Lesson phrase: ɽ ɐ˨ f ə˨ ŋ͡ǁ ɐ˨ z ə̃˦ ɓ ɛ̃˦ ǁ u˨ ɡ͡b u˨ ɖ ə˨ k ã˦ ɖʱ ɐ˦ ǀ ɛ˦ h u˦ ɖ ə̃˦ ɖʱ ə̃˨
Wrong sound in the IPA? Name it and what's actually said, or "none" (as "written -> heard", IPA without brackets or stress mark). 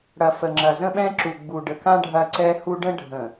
none